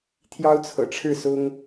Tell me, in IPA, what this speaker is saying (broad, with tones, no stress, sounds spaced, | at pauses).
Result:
t̪ʰ j ɑ˥ ʊ̯ t͡sʰ ɤ̰˨˩ ʈ͡ʂʰ ɻ̩˥˩ s ʊ˥ ŋ